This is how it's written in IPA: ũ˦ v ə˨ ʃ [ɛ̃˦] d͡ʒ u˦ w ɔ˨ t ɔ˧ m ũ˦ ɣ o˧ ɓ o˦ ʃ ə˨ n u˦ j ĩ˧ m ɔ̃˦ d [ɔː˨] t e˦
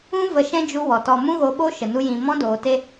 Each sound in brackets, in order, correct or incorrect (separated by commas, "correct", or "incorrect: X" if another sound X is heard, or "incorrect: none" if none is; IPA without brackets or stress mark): correct, incorrect: oː˨